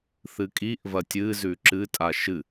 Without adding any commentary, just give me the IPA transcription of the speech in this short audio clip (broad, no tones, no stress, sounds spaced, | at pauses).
θ ɨ kʼ i ʔ v ɐ tʲ ɨ z ʉ ǁ ɨ tʼ a ʃ ɨ